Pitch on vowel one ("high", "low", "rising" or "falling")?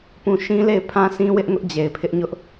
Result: falling